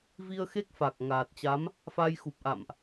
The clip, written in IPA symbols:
vi˧ə̯xe˦˥k̚fa˨˩k̚ ŋaː˨˩t̚t͡ɕa˨˦m | fa˧jxu˨˩p̚ʔa̰˧˨mʔ

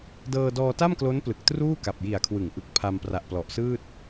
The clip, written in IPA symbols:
dɤː˧dɔː˧ta˥˩mklo˦˥n plɯ˨˩k̚truː˥˩ka˨˩p̚ ji˨˩a̯kʰwɯ˩˦ŋʔɯ˨˩k̚ pʰa˧m pra˨˩ʔplɔ˨˩ʔsɯː˥˩t̚

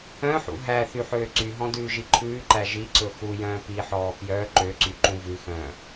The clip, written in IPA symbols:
œ̃ħṵ ɦæθy ħøːǀyɦɔ̃ dʉːʒiǃʰʉːǃæ ʒiǀɵ xu jœ̃ːpiħɔː pjœ ǃøǀy ǃũvʉxœ̃ː

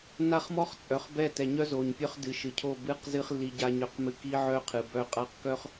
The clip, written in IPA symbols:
na˦χmɔ˦χ t͡sʼœ˨χbɛ˦˨ tɛ˨ɲœ˦zo˨ɲpʲœ˦χ dɨ˨ʃɨ˨cʰo˦˨ bɨ˦qzɨ˦χ lːi˦ɟa˦ɲœ˦qmɨ˦ ki˦ʕœ˦ qʰɨ˨bœ˦qʼa˦q kœ˦χ

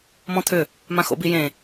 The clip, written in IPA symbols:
mɔ̃t̪ʰʏ | mãxo̰bijẽ

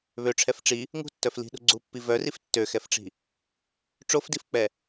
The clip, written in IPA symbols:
βøʈ͡ʂʰɛf ʈ͡ʂi | ŋṳtːœf li̤ɗṳ ɡ͡ǀupːi vœrif tːøxɛfʈ͡ʂi̤ | ʈ͡ʂofdifk͡pɛ

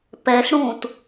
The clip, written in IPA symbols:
pɛsɽũːt

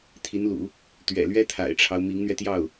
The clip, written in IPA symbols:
t̪ʰi˧˥nlṵ˨˩˦ | t̪ɥɛ̰˨˩lɥɛ˥ t̪ʰa̰˨˩ɪ̯ʈ͡ʂʰɑ˦ʊ̯ mi˧˥ŋn̪ɥɛ˧t̪jɑ˥˩ʊ̯

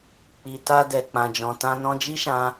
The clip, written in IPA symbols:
k͡pi˨ta˧ dɛ˨k͡pã˨d͡ʒɔ̃˨tã˧ nɔ̃˧d͡ʒi˦ʃã˧

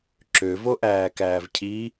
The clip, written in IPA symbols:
ǁøvoʔæː kæːvcʰi

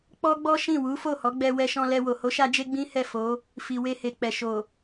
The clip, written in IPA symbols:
k͡pɔ˦ɡ͡bɔ˦ ʃĩ˦˨wu˨˦fo˦˨hɔ˨˦ ɡ͡bɛ˧ wɛ˧ʃɔ̃˧lɛ˧wo˨ ho˨˦ʃa˧d͡ʒe˧ ɡ͡bĩ˦ hɛ˦˨fo˨˦ | fi˨we˧he˨k͡pɛ˨ ʃo˨

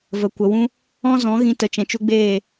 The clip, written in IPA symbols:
və˨kʷə˨wũ˦ | ɔ̃˦zɔ̃˨˦ ɣĩ˧tə˨ t͡ʃɛ̃˨t͡ʃu˧ɡ͡beː˦˨

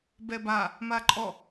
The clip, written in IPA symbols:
bɛba | maǃʼɔ

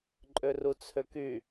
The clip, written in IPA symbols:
ǃʼørut͡sʰøky

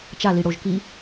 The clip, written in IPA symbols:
t͡ʃaliɽoʒ ki

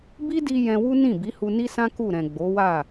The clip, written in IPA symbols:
bi˦di˧ jɛ̃˧wu˦nĩ˦˨ bi˨˦hu˧ni˦sã˦ ku˦˨ɾɛ̃˨ ɡ͡bo˨˦wa˦˨

